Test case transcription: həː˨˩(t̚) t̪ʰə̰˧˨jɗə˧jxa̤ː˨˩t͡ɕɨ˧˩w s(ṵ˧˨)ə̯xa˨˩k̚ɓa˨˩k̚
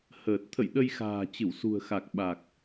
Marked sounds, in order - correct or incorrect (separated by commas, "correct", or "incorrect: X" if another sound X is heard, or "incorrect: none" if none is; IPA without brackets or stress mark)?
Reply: correct, incorrect: ṳ˨˩